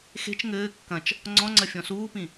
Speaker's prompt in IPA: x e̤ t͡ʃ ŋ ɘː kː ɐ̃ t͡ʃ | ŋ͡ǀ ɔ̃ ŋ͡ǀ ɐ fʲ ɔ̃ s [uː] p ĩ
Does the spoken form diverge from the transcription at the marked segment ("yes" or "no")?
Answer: no